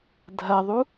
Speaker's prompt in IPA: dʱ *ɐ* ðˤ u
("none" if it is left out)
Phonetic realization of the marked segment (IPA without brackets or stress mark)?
ɐ